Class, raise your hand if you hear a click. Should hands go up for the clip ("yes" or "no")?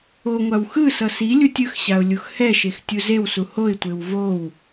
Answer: no